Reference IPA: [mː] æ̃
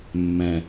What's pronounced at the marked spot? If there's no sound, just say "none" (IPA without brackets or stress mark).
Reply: mː